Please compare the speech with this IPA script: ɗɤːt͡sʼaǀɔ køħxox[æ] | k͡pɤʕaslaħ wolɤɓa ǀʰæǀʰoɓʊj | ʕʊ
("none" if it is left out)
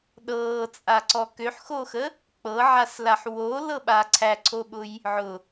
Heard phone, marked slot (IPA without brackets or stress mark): ə